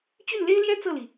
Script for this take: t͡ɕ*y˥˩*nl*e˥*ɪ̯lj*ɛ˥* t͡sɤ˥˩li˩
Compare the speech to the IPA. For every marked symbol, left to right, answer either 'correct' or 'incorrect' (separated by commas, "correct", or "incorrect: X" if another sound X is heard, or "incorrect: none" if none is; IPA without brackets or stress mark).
correct, correct, correct